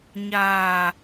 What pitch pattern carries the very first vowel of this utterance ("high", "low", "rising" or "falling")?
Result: low